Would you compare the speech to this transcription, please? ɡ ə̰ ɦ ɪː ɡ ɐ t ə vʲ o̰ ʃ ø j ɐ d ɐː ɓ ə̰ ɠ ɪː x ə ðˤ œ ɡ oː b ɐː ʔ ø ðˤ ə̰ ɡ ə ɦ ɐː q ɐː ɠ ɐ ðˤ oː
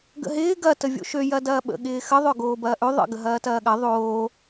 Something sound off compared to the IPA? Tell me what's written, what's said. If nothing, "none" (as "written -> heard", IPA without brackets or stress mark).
q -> t